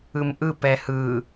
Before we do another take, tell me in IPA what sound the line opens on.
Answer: ɯ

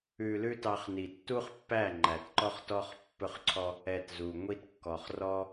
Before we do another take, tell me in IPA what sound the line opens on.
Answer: ʉ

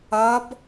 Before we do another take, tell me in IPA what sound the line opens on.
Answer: ɐ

